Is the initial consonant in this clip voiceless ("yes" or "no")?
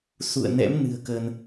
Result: yes